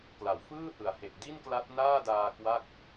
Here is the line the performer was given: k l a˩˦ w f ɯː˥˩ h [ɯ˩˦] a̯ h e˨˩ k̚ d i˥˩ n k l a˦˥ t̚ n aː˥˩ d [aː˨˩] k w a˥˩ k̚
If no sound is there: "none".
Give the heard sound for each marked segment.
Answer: ɯ˩˦, aː˧

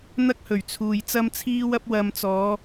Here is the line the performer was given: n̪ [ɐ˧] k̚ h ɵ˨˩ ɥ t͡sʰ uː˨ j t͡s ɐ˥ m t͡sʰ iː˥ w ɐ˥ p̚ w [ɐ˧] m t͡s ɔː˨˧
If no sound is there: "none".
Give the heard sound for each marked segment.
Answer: ɐ˥, ɐ˧

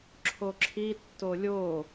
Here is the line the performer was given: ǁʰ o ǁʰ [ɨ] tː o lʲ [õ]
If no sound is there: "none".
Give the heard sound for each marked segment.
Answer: i, o

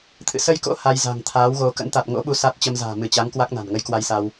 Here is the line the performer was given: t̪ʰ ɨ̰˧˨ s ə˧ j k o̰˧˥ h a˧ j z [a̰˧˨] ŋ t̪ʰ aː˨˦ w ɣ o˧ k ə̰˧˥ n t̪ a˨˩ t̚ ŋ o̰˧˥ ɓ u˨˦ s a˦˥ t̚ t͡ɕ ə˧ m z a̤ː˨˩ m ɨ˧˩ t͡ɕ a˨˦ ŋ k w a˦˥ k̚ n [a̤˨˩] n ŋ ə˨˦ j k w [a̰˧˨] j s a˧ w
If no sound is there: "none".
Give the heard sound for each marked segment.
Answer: a̤˨˩, a̤˨˩, a˧

